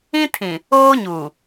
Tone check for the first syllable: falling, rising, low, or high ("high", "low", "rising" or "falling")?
high